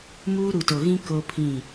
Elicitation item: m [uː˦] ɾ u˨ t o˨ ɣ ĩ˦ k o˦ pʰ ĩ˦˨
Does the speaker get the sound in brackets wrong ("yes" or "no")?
no